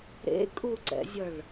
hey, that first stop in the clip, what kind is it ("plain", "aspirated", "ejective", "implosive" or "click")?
ejective